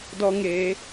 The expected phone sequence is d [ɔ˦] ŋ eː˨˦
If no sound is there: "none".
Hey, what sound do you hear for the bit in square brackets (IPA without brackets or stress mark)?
ɔ˦